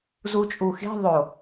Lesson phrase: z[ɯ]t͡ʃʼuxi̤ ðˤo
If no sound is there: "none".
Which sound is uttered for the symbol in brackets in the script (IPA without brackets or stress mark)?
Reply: u